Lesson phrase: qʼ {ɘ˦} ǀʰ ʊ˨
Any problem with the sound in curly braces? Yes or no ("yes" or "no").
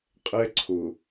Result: yes